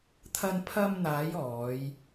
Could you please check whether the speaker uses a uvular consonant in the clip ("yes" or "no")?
no